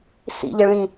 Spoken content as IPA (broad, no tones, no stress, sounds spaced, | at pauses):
s ḭ ʎ ɛ ɭ ĩ